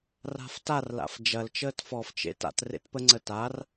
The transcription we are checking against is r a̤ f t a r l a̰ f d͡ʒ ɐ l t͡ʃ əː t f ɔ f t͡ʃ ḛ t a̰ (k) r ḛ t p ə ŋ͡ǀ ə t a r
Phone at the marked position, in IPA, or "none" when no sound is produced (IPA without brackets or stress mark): t